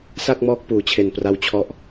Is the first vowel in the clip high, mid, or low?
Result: low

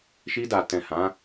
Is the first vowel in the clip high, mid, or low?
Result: high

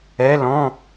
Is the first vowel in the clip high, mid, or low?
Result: mid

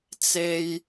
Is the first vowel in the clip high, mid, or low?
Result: mid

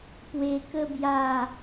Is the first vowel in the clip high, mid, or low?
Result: mid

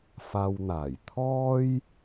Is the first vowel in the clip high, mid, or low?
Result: low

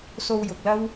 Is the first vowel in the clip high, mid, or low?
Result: mid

